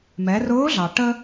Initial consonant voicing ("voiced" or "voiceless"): voiced